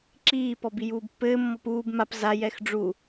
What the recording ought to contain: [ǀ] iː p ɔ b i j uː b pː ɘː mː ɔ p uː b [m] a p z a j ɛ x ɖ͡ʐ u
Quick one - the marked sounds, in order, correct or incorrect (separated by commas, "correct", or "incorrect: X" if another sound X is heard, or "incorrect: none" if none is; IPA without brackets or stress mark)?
incorrect: ǁ, correct